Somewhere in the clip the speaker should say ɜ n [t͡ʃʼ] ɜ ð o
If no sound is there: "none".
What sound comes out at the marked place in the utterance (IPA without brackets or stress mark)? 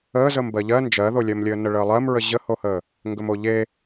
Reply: d͡ʒ